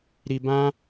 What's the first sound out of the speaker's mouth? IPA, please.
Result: ɾ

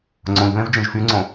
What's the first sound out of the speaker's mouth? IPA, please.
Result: ŋ͡ǀ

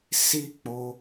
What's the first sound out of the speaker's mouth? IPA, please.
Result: s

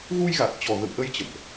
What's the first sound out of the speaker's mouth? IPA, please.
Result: ɣ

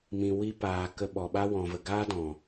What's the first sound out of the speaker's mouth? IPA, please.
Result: m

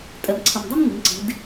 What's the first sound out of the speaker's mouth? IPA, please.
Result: tʼ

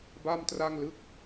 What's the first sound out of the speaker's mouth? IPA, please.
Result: b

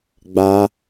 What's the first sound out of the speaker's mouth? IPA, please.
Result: ɡ͡b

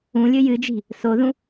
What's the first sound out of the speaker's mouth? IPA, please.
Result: ũ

